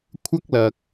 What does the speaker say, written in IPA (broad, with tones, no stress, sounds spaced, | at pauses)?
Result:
kʷʰ ɐ˥ k̚ l ɐ˨ k̚